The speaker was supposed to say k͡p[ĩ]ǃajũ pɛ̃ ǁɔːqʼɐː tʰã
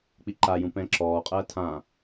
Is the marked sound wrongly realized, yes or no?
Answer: yes